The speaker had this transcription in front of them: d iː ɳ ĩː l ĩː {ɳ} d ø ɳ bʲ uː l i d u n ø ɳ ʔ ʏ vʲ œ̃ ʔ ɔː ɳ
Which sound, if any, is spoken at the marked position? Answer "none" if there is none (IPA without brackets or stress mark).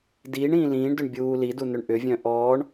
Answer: ɳ